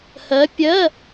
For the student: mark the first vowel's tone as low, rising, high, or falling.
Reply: rising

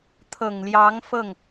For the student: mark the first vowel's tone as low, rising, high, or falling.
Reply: low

